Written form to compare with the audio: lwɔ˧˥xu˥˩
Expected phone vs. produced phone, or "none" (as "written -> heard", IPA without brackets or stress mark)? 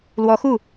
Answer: none